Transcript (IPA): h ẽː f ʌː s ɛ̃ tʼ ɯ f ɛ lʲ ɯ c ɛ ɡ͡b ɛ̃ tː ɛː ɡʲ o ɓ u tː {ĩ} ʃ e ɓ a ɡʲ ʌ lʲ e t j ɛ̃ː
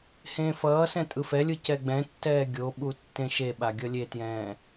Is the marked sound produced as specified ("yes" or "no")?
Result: no